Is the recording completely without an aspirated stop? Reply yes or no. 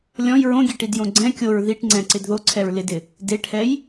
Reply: no